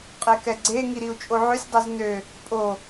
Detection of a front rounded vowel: present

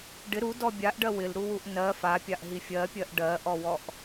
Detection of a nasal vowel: absent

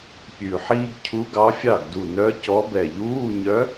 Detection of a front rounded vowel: present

